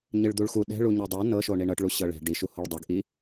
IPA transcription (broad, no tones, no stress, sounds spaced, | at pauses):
ɲ ɨ ɭ d̪ u ɭ x u ɗ ɛ̤ ɭ u ɲ i dˤ o n ɤ ʃ o ɳ i ɳ ɤ ʈ ɭ u ɕ ɤ ɭ ɛ̤ ɖ i ʃ u h o ɭ dˤ u ɡ ʔ i